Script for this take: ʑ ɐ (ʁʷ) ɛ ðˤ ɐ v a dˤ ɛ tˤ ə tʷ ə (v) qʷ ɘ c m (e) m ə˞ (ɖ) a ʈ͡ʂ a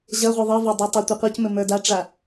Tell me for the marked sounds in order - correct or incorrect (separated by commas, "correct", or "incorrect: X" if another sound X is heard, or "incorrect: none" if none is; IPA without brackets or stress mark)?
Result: correct, incorrect: none, incorrect: ɘ, incorrect: d